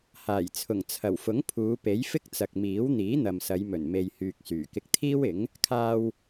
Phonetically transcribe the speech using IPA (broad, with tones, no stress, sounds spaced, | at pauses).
h aː˨˩ j t͡sʰ ʊ˨˩ ŋ t͡sʰ ɐ˨˩ w f ʊ˨˥ ŋ pʰ uː˨˧ p e˨˥ j f ɪ˥ k̚ t͡s ɐ˨ k̚ m iː˨˥ w n̪ iː˨˥ n̪ ɐ˨ m s ɐ˨˧ j m ɵ˨˩ n m e˨ j h yː˨ k̚ s yː˨˩ k ɪ˧ k̚ t̪ʰ iː˥ w ɪ˨˥ ŋ | kʰ aː˧ w